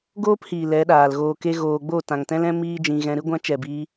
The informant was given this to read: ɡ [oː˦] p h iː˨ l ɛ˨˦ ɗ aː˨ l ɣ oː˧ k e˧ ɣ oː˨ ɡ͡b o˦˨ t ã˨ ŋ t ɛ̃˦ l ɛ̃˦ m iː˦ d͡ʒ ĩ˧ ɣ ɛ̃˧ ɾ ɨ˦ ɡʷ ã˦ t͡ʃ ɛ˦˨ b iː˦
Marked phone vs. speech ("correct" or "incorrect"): correct